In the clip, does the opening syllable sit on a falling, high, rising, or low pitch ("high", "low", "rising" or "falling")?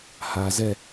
low